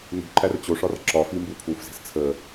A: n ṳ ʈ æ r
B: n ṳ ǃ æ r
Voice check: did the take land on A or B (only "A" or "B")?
B